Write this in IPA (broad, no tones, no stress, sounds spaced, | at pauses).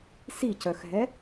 s i c œ x ɦ ɛ